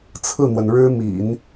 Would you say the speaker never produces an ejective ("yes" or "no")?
yes